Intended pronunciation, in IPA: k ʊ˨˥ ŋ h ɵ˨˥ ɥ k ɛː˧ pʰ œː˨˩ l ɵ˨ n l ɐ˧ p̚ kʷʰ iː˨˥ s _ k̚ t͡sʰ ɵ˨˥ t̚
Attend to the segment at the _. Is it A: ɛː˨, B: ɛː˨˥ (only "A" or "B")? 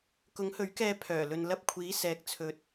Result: A